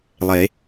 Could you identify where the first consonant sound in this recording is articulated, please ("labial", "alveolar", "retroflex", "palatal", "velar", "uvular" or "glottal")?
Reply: alveolar